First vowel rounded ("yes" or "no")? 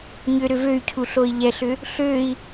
yes